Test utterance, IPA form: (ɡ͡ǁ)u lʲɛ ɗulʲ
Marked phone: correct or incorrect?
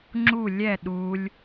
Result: incorrect